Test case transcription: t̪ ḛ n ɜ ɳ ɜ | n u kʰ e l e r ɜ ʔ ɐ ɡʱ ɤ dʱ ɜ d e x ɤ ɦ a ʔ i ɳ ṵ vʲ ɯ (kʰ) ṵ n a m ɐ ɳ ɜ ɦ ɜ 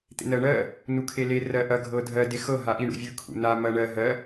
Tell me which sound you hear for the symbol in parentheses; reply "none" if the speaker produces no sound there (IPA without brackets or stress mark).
kʰ